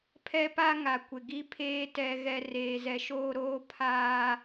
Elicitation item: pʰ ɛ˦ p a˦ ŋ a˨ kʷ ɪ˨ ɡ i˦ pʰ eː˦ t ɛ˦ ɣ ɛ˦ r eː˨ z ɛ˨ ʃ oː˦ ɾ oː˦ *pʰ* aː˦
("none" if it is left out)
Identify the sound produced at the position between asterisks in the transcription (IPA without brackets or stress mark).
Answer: pʰ